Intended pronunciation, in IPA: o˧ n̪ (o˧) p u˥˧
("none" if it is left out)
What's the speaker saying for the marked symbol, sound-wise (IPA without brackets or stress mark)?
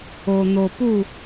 o˧